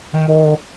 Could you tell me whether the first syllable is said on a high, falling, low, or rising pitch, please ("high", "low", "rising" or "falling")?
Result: high